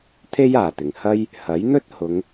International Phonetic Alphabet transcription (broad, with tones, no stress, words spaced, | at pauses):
t̪ʰe˥jaː˨˩t̪ɪ˨˩ŋ hɐ˥j | hɐ˨˥jn̪ɵ˥t̚hʊ˨˧ŋ